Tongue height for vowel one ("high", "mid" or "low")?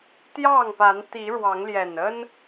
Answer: low